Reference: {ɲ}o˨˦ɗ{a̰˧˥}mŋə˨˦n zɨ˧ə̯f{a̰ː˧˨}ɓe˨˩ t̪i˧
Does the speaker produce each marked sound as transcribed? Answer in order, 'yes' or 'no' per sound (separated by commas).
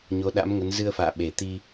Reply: yes, yes, yes